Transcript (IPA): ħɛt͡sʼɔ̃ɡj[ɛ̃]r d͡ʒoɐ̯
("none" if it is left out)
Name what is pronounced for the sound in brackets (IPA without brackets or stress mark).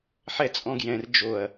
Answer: ɛ̃